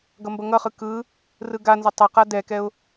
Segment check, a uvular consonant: present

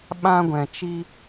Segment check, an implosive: present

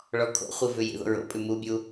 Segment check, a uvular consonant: present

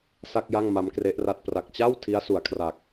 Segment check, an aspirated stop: present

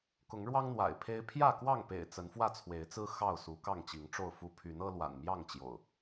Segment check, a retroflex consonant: present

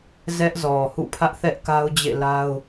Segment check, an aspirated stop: present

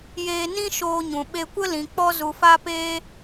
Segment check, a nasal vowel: present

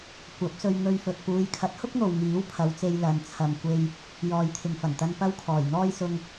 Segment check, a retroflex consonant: absent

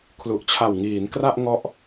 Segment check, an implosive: absent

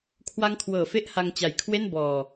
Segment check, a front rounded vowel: absent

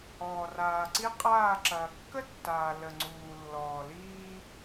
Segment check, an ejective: present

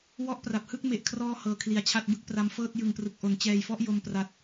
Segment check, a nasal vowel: absent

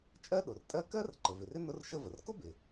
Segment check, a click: present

